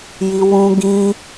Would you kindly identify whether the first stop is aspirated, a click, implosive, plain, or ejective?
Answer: plain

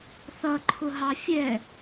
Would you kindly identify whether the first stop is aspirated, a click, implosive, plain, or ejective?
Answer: click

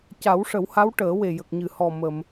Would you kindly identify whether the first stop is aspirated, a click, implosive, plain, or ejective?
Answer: plain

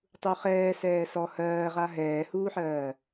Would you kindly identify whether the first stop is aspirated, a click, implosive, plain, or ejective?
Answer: plain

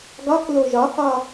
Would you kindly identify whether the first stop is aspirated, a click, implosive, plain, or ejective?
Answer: plain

